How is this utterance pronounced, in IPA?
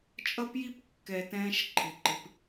t͡ʃʼʌ˦pji˦pkːɛ˧ tɛ̃ː˦ʃǃʰɪ˧ǃɪ˧p

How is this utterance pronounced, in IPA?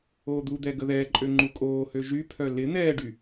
oːd̪ud̪ɛ ɡəðɛːǃʼø ŋ͡ǃukʼoːhø ʒypʰœ lɪ n̪ɛːɖy

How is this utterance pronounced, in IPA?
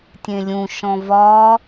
tʲẽlʲũʃɔ̃ vɒ

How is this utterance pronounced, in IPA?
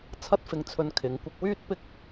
t͡sʰɐ˥t̚fɪ˧ŋt͡sʰɵ˧n kʰɪ˨˧ŋkʷɪ˧k̚wyː˥t̚pɪ˥k̚

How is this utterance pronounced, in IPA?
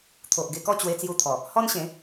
t̪ʰo˨ʔ ɡe˧kɔ˥˧ t͡ɕwe˧t͡sju˧t̪ʰɔ˨˩ | hɔ˦nɕẽ˨˦

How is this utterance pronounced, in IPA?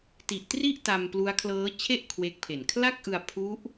ti˨˩ʔtri˥˩ʔ ta˧mplu˦˥a̯ kʰlɤː˦˥t͡ɕʰe˥˩ʔ kʰwe˦˥k̚pʰe˨˩n kʰla˥˩k̚ʔɯ˧a̯pʰu˦˥ʔ

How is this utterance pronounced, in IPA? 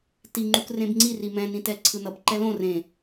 tiŋ͡ǃuk rẽbŋ͡ǀiri mɛ̃nĩ tɛǀʰɯnʌb ǃɛlõ rẽ

